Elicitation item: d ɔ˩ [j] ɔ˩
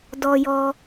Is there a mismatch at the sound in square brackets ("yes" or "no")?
no